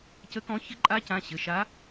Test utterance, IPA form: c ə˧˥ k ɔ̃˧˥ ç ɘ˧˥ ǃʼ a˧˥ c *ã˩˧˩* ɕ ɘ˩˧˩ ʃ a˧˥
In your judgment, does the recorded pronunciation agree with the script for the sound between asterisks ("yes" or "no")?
yes